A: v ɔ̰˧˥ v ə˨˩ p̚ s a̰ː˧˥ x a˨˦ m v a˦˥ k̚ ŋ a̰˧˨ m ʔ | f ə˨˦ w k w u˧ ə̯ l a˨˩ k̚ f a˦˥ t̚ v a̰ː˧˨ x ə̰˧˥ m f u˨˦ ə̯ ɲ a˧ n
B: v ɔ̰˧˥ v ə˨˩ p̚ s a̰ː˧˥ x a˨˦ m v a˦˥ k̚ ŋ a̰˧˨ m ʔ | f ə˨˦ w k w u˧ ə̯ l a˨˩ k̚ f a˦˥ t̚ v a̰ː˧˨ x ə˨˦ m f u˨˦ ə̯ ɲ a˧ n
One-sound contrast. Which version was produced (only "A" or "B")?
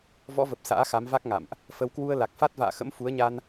A